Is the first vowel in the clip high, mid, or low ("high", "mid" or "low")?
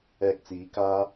mid